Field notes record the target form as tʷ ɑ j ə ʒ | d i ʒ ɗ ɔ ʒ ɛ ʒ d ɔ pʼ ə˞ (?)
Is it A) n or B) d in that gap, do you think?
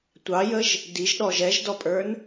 A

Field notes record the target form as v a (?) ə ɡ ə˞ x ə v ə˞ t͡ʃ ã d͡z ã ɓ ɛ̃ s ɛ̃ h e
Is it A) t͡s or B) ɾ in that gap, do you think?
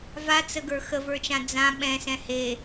A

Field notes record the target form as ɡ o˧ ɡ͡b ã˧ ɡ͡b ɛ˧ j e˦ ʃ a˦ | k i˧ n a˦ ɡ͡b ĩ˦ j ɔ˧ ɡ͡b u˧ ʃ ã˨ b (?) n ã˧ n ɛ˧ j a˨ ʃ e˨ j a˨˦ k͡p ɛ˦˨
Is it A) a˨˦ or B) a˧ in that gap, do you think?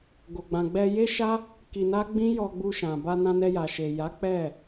B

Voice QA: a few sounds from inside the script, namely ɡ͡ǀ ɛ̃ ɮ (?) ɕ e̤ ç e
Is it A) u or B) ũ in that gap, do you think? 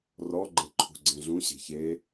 B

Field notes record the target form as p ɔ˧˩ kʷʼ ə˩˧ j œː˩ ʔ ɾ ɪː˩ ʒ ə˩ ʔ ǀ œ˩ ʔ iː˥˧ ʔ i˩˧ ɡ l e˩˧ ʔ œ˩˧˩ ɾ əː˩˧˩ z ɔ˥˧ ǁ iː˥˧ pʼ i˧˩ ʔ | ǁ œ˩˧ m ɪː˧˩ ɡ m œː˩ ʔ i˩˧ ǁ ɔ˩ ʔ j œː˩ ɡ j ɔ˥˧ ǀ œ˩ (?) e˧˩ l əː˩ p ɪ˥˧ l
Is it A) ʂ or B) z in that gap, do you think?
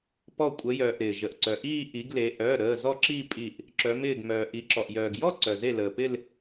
B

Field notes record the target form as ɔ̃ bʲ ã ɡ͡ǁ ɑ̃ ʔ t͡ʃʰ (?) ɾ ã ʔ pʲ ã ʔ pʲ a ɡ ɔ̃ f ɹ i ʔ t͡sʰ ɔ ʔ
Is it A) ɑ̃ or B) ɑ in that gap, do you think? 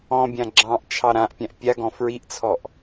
B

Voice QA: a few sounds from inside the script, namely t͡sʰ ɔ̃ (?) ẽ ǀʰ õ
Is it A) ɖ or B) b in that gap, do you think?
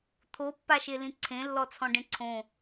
A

